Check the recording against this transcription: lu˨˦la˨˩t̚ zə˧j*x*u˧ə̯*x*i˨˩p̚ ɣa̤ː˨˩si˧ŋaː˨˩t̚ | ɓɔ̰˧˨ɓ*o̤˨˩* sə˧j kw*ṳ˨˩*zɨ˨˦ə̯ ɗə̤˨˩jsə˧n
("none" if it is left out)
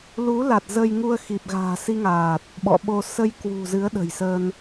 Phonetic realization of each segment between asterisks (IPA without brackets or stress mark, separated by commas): ŋ, x, o˧, ṳ˨˩